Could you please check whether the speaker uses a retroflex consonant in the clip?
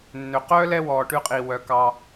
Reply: yes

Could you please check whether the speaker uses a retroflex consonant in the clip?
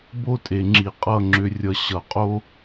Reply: no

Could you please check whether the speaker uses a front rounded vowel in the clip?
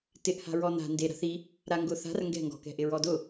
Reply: no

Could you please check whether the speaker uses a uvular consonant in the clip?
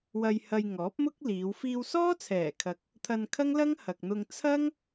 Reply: no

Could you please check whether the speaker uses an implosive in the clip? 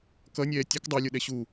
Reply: yes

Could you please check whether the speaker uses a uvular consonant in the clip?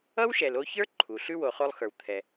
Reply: yes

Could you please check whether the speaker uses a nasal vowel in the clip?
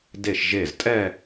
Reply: no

